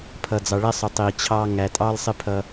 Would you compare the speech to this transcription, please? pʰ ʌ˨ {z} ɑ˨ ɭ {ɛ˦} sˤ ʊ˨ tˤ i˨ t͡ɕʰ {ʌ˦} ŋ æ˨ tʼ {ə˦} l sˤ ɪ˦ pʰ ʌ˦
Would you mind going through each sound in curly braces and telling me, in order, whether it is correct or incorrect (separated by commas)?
incorrect, correct, incorrect, incorrect